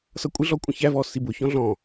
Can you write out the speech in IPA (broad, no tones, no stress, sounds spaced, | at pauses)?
s ʌ kʷʼ ɪ ɮ ɔ kʷʼ ə̃ ç æ v ɔ s i b ʊ ç ɔ̃ ɮ ɔ̃